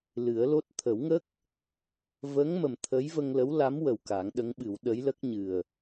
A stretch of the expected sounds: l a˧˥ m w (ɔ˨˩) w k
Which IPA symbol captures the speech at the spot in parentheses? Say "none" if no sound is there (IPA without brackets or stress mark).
ə˨˩